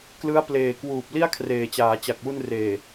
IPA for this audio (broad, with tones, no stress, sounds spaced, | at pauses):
k l ɯ˦˥ a̯ p l eː˨˩ k w uː˨˩ p̚ l i˥˩ a̯ kʰ r eː˨˩ t͡ɕ aː˩˦ t͡ɕ a˨˩ k̚ w u˧ n r eː˨˩